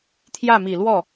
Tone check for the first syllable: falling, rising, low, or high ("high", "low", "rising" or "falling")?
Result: falling